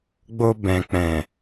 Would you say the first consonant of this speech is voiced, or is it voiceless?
voiced